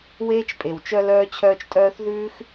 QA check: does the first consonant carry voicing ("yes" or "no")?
yes